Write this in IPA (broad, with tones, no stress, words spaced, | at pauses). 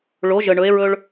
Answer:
ɭo˩˧ʒə˩ ɳɵ˩˧e̯ɹɵ˧ɭ